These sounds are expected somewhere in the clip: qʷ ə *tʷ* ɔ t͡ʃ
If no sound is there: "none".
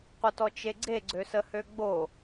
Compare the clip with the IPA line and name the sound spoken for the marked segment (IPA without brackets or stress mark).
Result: t